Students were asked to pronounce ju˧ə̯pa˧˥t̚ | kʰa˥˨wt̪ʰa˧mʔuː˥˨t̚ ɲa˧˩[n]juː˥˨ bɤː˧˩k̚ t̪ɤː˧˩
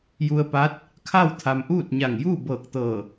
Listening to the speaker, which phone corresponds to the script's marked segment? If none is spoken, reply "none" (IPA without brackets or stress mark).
ŋ